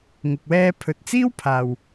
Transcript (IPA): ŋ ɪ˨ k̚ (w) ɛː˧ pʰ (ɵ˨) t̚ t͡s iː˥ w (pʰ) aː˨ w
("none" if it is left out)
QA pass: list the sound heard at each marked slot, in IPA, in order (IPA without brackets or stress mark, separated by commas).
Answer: w, ɵ˨, pʰ